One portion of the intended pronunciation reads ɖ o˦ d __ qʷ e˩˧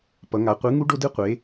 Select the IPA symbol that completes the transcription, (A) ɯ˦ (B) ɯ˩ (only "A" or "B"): A